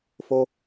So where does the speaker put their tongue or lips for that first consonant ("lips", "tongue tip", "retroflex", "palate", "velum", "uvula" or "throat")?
lips